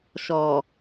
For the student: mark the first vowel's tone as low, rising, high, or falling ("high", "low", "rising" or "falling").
low